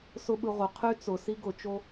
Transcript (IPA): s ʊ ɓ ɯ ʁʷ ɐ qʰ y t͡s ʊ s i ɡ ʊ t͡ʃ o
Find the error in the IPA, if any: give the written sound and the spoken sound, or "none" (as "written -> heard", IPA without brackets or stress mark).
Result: ɐ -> ə